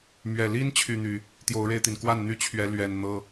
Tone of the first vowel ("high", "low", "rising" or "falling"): low